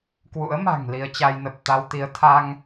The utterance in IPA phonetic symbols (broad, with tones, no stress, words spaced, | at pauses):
kwṵ˧˥ə̯ma̤˨˩ŋ li˧ə̯t͡ɕa˧jnə˨˩p̚ t̪a˧wt̪i˨˦ə̯ t̪ʰa˧ŋ